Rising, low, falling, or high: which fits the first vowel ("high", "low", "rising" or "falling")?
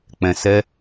low